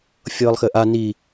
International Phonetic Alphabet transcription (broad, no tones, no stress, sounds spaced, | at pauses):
fʲ ɤː lˠ x ɘ ʔ a n i